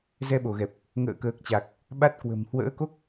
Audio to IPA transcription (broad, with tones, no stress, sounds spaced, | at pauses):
z ɛ˧ ɓ o˧˩ ɣ ɛ˨˩ p̚ | ŋ ə̰ː˧˨ k əː˨˩ k̚ t͡ɕ a˨˩ k̚ | ɓ a˦˥ t̚ k w ə̤˨˩ m h w ə̰ː˧˥ k o˦˥ k̚